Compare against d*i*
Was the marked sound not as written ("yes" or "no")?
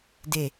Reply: yes